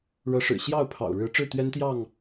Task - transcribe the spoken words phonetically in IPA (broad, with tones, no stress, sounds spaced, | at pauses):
ɻ ɤ˨˦ ʂ ɻ̩˨˩ ɕ j ɑ˥˨ ʊ̯ pʰ ɑ̰˨˩ ʊ̯ ɻ ɻ̩˨˦ ʈ͡ʂ ɻ̩˥˨ t̪ ɥ ɛ˦ n t̪ j ɑ˥˨ ŋ